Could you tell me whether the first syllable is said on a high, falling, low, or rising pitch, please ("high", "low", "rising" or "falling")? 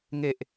low